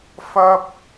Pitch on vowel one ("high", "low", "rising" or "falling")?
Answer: high